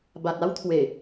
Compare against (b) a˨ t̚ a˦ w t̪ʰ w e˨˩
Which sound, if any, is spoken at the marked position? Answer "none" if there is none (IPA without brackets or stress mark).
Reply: b